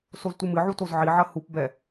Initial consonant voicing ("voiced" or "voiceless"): voiceless